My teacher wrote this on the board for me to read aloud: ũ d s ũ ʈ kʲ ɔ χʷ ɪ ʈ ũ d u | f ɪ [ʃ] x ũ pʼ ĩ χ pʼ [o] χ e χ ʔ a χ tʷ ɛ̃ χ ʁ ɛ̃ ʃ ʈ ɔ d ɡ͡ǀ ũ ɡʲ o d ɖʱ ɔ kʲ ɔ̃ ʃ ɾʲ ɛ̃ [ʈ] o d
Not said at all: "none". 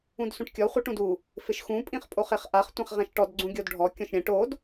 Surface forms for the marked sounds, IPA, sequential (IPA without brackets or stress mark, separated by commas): ʃ, o, ʈ